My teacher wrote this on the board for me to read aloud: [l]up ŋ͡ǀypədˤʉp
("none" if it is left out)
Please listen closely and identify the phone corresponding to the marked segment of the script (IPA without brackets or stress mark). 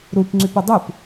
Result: ɾ